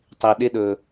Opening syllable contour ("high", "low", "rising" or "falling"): low